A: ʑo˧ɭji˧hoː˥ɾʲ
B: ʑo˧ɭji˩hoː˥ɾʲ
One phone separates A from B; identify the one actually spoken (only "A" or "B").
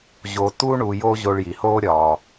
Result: B